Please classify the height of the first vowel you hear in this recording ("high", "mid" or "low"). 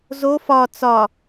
mid